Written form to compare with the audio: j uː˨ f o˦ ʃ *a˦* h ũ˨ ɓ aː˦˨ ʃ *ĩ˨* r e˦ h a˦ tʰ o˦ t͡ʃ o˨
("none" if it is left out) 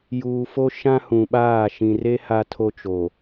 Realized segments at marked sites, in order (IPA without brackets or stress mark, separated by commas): ã˦, ĩ˨